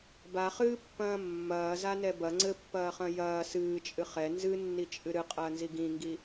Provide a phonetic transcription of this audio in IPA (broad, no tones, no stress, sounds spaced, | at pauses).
b a χ ɨː pː ɐ̃ː mː ɐː z a n ɛ b ɐ ŋ͡ǀ ɘ pː ɐː χ ɐ̃ j ɐː s ɨː t͡ʃʼ ɨ χ ɛ n z ɨ nː i t͡ʃʼ ɨ ɾ ɨ qʼ ɐː n z i ɡ ĩ ŋ ɡ i